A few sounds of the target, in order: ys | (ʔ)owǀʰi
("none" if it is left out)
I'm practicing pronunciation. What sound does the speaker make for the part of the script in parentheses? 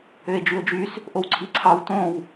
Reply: ʔ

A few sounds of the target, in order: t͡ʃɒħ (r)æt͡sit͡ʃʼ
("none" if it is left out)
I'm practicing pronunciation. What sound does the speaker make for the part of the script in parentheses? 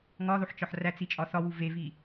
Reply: r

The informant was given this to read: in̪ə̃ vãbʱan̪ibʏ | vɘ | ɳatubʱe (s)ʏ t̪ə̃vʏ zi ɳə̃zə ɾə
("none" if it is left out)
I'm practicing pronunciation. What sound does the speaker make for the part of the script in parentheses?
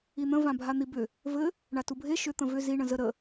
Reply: ʃ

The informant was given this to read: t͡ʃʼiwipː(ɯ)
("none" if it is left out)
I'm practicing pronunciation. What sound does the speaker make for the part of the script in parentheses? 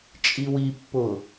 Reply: ʊ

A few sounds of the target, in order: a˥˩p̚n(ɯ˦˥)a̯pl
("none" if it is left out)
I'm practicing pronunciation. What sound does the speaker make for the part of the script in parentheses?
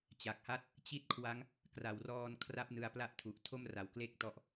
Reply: ɯ˧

